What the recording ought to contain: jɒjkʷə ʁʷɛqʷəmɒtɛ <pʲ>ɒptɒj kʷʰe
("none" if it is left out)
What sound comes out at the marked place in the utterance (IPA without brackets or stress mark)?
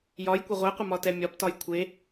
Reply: mʲ